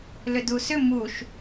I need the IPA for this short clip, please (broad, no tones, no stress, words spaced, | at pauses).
lʏdusʏ muʃ